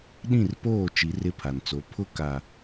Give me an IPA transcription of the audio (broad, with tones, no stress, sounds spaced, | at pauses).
ɗ ĩ˦˨ r p oː˦˨ t͡ʃ i˨˦ r ɪ˦ pʰ a˨ n t͡s o˨˦ pʰ ʊ˦ k a˨